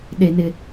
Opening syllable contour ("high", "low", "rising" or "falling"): high